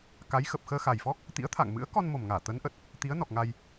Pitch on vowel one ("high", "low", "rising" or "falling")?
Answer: rising